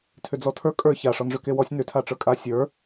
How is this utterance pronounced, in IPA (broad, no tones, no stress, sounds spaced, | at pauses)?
tʰ ʏ d͡z ɔ tʰ ə˞ kʼ ə˞ ç a ʂ ɔ n ʐ ʏ k e w ɔ sʲ n ʏ tʰ a ʈ͡ʂ ə˞ kʼ a sʲ ə˞